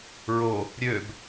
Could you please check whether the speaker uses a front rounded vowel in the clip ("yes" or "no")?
yes